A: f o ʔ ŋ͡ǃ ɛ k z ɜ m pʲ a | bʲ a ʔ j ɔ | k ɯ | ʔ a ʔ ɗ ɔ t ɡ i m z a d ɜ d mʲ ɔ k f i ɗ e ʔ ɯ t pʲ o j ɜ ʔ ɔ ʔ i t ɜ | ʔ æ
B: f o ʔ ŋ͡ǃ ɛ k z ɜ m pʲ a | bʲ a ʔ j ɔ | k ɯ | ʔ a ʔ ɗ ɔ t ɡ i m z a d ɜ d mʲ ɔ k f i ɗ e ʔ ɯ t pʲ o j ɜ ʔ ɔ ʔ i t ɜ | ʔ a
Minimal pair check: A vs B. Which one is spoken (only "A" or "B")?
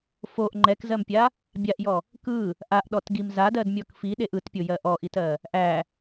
A